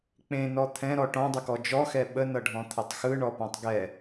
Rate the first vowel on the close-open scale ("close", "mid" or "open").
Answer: mid